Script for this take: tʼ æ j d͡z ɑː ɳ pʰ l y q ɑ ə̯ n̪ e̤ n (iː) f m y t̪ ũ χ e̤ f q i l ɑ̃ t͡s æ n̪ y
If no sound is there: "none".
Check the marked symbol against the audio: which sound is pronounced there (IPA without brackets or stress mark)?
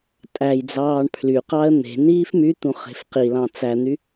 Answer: iː